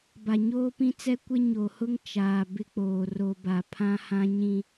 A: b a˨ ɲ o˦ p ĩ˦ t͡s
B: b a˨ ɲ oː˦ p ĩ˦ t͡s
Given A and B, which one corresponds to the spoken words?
B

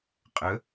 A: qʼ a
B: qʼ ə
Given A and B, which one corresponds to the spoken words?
B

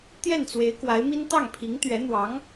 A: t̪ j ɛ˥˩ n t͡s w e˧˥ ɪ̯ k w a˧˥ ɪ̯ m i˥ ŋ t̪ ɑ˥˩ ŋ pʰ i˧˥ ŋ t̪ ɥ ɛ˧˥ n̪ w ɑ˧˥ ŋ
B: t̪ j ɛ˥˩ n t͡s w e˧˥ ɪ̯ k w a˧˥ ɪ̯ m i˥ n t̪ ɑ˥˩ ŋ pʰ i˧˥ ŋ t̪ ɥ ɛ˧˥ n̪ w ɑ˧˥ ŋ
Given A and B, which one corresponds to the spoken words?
B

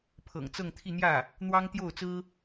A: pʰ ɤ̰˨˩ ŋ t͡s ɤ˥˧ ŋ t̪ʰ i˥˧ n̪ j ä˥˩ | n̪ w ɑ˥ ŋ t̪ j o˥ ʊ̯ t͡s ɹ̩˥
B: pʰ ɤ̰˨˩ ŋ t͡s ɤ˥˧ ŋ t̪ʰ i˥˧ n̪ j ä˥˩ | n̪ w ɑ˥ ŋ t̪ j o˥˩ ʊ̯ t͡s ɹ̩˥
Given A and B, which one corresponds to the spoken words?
B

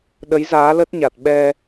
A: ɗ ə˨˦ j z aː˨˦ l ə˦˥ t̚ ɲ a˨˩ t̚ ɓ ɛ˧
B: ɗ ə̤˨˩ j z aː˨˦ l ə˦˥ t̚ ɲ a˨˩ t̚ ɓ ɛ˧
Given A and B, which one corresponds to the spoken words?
A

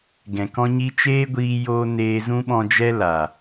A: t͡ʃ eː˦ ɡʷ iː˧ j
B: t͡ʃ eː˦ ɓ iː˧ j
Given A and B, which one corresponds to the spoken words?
A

